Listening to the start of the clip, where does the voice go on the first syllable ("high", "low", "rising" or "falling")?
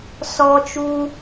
high